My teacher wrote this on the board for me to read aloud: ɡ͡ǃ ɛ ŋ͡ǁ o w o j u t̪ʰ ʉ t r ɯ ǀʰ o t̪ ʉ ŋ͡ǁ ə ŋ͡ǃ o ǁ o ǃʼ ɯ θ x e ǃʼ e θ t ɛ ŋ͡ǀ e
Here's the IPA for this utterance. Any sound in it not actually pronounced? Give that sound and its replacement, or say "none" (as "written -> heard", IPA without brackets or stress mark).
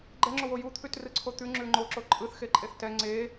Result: ə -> ʉ